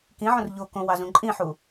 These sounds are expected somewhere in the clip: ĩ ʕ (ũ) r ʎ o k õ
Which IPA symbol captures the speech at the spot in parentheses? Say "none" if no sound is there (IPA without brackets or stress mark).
õ